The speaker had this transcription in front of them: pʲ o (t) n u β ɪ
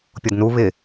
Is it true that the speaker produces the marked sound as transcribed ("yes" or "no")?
no